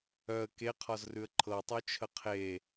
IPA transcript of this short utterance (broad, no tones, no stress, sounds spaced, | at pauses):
œ ə̯ k e qʰ ɒ z r ʉ ə̯ ǃʰ ɤ tˤ u t͡ʃʰ ə qʰ e